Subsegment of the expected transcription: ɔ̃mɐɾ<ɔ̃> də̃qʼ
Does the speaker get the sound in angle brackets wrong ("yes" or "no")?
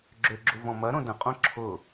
yes